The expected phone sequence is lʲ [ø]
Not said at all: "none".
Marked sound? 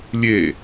e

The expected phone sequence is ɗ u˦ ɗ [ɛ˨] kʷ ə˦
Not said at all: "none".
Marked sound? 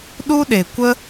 e˨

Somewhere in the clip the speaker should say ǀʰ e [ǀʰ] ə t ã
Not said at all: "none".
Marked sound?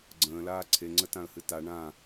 ŋ͡ǀ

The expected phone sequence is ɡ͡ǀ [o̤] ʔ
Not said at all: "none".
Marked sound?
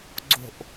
o̤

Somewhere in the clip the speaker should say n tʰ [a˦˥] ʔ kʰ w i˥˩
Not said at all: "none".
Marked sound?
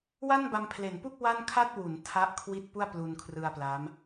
a˥˩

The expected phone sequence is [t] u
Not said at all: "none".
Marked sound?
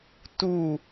t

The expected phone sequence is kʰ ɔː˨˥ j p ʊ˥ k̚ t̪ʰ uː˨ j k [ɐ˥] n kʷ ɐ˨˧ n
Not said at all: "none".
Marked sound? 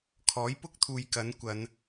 ɐ˨˥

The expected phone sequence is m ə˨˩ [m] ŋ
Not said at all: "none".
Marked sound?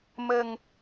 none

